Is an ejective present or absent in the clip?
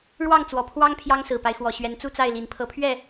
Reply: absent